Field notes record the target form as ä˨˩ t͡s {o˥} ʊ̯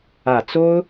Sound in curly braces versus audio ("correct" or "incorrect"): correct